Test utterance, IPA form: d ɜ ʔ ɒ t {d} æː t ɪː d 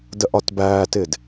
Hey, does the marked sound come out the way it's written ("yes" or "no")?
no